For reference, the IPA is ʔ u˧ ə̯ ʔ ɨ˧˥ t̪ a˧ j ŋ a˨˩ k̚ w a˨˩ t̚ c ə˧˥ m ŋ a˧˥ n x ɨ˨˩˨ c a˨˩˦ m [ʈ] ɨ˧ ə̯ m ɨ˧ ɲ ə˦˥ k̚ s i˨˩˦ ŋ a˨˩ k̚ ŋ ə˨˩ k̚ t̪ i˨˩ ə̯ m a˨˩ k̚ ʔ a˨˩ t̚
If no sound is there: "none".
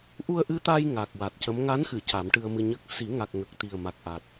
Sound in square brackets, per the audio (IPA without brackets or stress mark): ʈ